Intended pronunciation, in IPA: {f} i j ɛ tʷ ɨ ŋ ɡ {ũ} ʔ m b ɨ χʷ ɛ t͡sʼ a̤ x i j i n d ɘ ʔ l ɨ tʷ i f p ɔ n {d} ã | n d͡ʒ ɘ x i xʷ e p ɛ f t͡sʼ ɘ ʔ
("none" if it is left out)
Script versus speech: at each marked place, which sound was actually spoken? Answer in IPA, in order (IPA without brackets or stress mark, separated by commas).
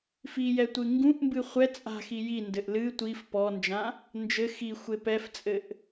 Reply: f, ũ, d͡ʒ